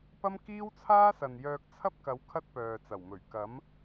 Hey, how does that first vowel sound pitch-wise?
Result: high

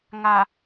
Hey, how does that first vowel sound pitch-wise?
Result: low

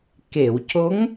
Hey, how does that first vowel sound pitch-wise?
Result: low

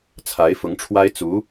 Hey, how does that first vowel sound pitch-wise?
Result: rising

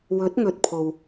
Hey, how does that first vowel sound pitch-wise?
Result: rising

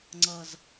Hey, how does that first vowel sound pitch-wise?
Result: low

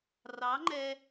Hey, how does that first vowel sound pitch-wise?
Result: rising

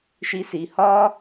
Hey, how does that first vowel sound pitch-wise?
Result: rising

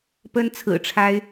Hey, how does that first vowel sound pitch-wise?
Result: high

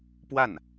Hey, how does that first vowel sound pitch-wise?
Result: falling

